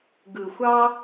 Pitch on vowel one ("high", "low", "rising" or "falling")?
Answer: low